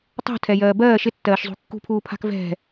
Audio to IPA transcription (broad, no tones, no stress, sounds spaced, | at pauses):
tˤ ṳ tʰ ɛ j ɜː b ɜː ʃ ɪ tː ɜː ʃ zˤ ṳ kː ṳ pʰ uː pʰ a̤ k v ɛ̤